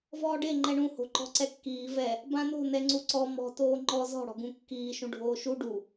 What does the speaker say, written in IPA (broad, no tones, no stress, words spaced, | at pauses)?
vɔːɖe ŋ͡ǃɛɳũ ho̤ǃɔ̤ǀɛkːiː vɛ | bãno̤ nɛŋ͡ǀuǀɔ mɔ̤ toːŋ͡ǃɔ zɔ̤ ɽɔ̤ɡũkːiː ʃũɖʱoːʃu ɖu